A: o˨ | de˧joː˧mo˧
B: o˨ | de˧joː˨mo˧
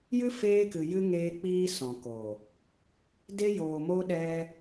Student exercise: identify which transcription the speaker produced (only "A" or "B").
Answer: B